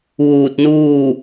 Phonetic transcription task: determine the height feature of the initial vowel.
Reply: high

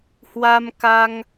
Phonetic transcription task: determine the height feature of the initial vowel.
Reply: low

